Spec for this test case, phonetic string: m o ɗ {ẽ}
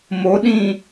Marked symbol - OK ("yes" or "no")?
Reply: no